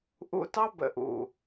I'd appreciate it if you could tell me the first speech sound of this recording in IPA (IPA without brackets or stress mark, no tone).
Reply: ʔ